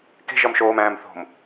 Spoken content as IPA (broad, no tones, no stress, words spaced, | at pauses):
ke̤ʒɒm ʃoːmæ̃ːm θo̤m